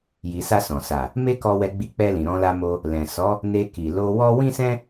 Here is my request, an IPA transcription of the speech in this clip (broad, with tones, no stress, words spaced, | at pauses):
ji˨sa˧ sɔ̃˨ sa˨ | me˦kɔ˧wɛ˧ɡ͡bi˧ k͡pɛ˧lĩ˨ ɾɔ̃˧la˧mo˧ | lɛ̃˨sɔ˨˦ | ne˧ki˨ lo˧wɔ˦ wĩ˦sɛ̃˦